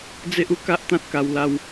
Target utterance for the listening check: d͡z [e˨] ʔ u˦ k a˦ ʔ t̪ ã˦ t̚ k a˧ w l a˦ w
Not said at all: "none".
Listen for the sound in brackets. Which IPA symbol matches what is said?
e˦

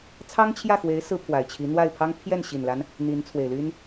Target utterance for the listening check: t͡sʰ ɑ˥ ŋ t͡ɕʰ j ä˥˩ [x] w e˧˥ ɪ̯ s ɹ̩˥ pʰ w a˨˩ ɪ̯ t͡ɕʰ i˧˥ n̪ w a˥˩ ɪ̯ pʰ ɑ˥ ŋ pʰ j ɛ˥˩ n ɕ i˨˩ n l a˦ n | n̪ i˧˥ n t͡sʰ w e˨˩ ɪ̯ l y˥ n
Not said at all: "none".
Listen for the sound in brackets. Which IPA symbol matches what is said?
x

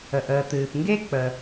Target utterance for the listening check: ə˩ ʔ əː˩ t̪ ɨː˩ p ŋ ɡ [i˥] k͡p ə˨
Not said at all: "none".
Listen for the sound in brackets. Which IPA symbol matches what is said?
e˥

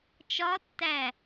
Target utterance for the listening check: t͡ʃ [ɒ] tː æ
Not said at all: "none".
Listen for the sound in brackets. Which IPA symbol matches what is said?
ɒ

